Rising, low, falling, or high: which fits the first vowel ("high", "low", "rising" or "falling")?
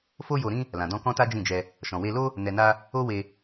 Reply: high